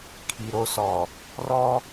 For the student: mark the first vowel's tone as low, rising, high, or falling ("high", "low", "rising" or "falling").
low